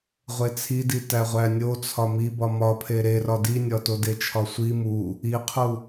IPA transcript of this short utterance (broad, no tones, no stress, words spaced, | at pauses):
ʁʷet͡sʰiditæ ʁʷænʲo t͡sʰɒmibɒ mɒpʰe ɾerɒ dinʲɒto det͡ʃʰɒsʷi mu | iqʰu